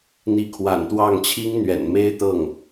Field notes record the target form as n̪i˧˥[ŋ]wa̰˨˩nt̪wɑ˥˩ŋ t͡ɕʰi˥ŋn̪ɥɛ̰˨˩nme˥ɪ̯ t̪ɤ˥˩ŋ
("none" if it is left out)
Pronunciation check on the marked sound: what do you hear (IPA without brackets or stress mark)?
kʰ